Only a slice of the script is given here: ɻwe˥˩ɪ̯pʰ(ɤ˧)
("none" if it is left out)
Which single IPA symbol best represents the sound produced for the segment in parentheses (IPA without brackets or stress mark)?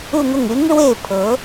ɤ˧˥